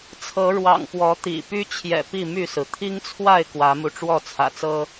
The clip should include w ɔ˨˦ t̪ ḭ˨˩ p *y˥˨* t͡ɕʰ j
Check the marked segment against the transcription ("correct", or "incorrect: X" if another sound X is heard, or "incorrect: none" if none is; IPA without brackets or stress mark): incorrect: y˦